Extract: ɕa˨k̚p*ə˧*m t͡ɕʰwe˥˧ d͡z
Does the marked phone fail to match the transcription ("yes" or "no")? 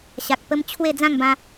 no